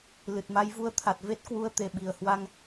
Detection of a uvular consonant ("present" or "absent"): absent